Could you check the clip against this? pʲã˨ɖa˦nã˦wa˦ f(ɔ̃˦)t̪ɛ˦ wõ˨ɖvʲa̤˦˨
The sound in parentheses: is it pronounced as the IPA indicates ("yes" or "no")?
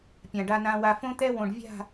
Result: no